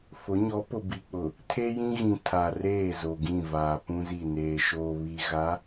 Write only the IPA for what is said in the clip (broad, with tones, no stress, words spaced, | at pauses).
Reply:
fʊ˨˦ ɲɔ˨˦pʊ˨ bi˨k͡pʊ˨ | tʰe˦jĩ˦ɣĩ˨ tʰa˨reː˦˨zo˨ɡĩ˦˨ vaː˨pũ˦zi˦˨ neː˨ʃoː˨βi˨ ɣa˨˦